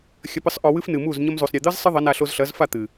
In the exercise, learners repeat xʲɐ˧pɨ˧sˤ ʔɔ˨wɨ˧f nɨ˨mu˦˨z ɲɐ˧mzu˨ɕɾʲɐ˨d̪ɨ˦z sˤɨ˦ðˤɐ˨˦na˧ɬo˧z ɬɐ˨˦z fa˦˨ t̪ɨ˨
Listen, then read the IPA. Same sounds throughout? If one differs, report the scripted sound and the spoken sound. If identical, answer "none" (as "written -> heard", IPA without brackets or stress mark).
ɕ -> sˤ